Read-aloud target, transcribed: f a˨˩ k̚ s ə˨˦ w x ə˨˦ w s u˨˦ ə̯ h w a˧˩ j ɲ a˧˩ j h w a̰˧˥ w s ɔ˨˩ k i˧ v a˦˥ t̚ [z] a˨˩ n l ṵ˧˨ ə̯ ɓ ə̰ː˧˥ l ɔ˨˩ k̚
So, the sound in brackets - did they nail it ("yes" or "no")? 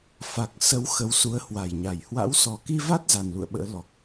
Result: yes